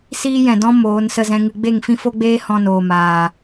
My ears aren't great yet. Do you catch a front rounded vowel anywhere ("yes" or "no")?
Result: no